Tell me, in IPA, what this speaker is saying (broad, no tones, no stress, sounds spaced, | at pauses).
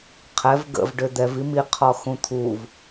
qʰ ɛ v ɡ ə̰ v ɖ ø d̪ ɛ v i m i qʰ ɔ x ũ t̪ʰ u v